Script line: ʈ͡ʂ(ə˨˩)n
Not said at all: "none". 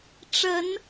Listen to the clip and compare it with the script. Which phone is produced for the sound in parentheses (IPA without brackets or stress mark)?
ə˨˦